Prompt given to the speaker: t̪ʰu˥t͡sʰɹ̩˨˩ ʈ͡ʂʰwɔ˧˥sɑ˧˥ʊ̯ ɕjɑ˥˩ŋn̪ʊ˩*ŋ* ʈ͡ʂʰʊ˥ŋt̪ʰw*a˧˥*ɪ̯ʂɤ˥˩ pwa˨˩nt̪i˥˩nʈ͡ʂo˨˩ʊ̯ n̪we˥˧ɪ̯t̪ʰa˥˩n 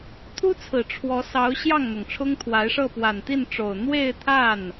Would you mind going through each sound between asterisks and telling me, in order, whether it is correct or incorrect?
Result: correct, correct

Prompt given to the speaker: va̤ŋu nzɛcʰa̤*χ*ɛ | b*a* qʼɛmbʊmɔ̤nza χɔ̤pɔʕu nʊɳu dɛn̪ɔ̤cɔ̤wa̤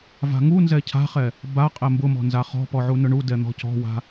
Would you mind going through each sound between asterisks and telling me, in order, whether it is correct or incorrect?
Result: correct, correct

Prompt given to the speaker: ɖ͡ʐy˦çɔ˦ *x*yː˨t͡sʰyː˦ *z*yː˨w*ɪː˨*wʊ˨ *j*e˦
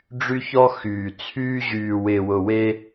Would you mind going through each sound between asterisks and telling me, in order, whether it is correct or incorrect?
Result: correct, incorrect, correct, incorrect

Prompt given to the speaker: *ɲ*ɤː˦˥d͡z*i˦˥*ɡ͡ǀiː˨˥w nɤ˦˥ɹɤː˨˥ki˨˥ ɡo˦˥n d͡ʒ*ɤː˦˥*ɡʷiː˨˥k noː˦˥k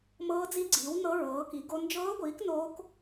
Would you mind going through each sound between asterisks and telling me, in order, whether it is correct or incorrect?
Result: incorrect, correct, correct

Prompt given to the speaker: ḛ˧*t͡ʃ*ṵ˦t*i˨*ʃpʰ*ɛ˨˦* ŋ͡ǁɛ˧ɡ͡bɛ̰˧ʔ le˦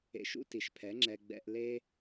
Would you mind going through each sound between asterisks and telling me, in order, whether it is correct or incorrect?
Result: incorrect, correct, correct

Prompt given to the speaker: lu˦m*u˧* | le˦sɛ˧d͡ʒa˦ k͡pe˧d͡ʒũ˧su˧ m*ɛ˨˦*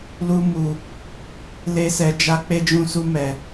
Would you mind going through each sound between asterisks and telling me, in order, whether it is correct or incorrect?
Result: correct, incorrect

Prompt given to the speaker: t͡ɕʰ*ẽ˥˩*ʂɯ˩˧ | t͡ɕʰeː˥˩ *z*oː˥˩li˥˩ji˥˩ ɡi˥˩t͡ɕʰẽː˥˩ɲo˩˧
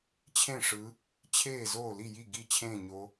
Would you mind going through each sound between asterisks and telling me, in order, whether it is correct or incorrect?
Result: correct, correct

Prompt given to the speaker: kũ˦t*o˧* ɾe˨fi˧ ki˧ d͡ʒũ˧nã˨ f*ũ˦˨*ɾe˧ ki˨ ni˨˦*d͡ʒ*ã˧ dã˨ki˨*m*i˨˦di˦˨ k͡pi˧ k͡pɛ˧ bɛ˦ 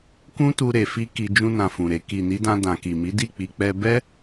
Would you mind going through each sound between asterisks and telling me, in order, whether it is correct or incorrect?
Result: incorrect, incorrect, incorrect, correct

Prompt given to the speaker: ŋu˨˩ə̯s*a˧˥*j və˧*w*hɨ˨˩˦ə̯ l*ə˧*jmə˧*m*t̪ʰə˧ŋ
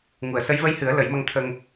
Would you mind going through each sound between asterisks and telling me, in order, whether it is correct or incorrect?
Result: incorrect, incorrect, incorrect, incorrect

